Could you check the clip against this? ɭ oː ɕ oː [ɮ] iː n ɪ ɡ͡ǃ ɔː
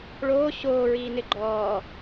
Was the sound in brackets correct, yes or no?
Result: no